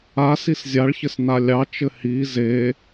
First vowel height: low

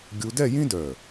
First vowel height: high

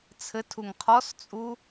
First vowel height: mid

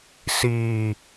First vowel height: high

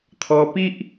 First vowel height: mid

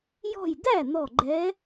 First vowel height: mid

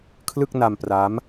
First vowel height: high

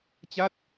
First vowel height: low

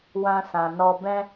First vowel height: low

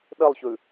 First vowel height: mid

